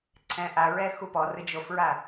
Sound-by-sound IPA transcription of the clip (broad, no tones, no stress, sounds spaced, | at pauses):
ǀʰ ɛ̃ ʔ a ɹ ɛ x u p ɔ r ɨ d͡ʒ o f ɹ a